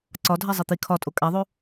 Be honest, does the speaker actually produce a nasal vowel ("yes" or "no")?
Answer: no